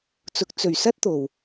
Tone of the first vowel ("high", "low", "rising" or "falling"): rising